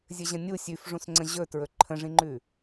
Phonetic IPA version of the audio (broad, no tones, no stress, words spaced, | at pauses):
zʲɘʑə̃nʲu sʲʉfʐũsŋ͡ǀə̃ ʑɵ tɹɵǃʰə̃ʐĩŋ͡ǃʉ